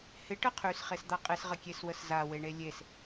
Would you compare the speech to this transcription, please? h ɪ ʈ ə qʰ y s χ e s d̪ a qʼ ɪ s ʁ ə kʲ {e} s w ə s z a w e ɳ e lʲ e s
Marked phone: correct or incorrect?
correct